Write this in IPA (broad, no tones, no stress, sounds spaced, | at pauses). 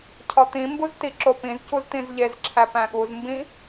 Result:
cʰ ɒ t̪ ĩ m b u z t i ǁ o p ĩ z c u z t̪ ĩ z ʎ e z ǁʰ æ p æ̃ ɠ u z m b ĩ